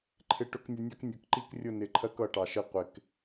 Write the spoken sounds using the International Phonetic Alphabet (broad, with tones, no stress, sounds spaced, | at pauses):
ǃʰ ɪ˦ ʈ ʊ˦ k nʲ ʊ˦ nʲ ɑ˦ k nʲ ʊ˨ k ǃ i˦ k rʲ ʊ˦˨ n ɪ˨ ǃʰ ɜ˦ k ʌ˨ ʈ ɑ˨ ʃ ɪ˦ qʷ ɪ˨ k